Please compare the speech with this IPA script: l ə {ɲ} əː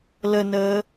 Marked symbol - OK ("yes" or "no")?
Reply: no